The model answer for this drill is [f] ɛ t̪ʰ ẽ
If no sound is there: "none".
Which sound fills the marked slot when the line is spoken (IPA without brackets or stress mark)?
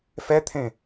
f